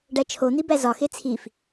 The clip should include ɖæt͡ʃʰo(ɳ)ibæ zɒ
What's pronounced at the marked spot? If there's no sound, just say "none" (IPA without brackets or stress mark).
n̪